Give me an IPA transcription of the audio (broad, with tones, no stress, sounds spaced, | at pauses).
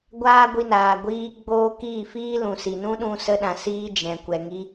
ɡʷ aː˦ ɡʷ i˧ n aː˨ ɡʷ iː˧ ɡ͡b oː˧ k iː˦˨ f iː˦ l ũ˨ s i˨ n ũ˦ ɗ ũ˧ s ə˧ ɗ ã˨ s iː˧ d͡ʒ ɛ̃˨ kʷ ɛ˨ ŋ i˧